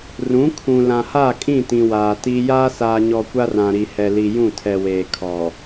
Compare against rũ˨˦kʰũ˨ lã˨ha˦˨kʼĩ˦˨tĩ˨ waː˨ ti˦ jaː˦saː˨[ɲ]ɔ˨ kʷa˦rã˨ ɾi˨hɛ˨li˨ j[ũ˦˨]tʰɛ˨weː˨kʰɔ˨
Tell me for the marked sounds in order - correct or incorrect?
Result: correct, correct

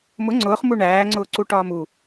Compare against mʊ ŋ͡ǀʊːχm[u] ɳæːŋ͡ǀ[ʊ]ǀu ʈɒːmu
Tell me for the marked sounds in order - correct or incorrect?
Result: correct, incorrect: ʊː

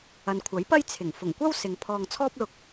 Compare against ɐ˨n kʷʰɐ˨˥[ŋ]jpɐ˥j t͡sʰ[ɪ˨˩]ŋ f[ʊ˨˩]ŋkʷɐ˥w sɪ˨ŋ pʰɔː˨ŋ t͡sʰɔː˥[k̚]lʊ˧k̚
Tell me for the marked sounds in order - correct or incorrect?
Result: incorrect: none, correct, correct, incorrect: p̚

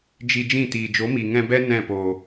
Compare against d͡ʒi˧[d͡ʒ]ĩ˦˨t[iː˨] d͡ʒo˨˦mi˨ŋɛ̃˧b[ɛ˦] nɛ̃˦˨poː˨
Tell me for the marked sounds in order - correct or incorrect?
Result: correct, correct, correct

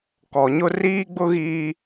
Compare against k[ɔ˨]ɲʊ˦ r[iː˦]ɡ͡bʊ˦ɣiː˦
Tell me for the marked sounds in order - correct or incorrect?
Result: correct, correct

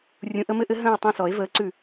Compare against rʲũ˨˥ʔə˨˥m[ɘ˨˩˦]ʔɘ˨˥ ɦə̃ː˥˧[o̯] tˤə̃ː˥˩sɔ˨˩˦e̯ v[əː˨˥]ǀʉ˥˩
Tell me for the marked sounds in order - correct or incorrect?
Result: incorrect: ɘ˦˥, incorrect: e̯, correct

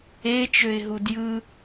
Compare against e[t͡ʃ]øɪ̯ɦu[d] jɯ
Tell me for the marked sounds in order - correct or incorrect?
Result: correct, correct

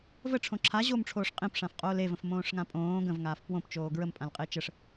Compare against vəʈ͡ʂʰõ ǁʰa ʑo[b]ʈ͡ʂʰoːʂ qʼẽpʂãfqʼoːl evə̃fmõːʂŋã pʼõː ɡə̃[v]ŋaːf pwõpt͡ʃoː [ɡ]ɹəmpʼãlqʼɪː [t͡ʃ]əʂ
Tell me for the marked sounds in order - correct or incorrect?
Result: incorrect: m, correct, correct, correct

